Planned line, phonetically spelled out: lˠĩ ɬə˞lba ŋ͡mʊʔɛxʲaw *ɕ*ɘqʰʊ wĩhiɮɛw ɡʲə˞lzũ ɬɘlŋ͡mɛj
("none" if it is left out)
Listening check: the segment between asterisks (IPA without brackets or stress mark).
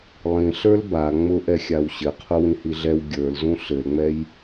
ɕ